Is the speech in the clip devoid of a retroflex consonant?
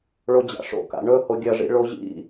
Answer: no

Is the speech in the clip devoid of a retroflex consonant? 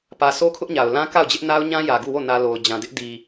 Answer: yes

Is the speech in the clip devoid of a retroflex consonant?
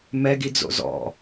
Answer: yes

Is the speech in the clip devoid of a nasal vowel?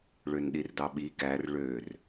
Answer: yes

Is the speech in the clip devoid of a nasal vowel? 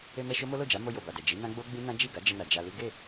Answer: no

